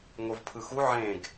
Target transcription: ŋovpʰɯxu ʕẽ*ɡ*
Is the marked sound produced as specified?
yes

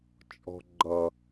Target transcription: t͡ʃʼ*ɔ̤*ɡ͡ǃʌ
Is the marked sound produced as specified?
yes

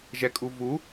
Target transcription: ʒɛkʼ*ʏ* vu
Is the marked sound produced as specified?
no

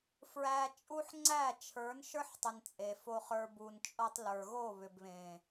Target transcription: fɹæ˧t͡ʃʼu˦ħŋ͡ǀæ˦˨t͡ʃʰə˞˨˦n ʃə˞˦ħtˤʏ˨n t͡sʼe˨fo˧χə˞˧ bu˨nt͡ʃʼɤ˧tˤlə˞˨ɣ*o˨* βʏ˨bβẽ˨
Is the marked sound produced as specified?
no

